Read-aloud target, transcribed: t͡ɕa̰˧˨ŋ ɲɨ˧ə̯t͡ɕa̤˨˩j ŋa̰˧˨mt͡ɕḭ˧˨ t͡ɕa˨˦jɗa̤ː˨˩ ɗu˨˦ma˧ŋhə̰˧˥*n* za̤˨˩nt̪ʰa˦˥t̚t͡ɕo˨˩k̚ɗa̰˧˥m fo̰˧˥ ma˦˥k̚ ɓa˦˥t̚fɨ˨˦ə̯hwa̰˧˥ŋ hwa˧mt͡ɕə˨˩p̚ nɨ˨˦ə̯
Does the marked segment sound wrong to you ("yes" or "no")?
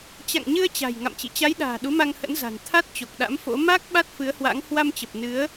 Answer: no